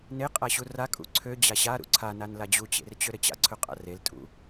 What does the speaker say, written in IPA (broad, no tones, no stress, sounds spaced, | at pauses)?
n e qʼ a ɕ u r a kʼ ṵ ǀʰ ø d͡ʑ a ɕ a ɾ ṵ ǀʰ a n a n l a d͡ʑ u t͡ɕ ḛ r t͡ɕ ø ɾ ɘ t͡ɕ a̰ ǀʰ ɵ qʼ a̰ r e l tʼ ṵ